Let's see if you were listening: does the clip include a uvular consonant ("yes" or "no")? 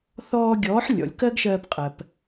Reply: yes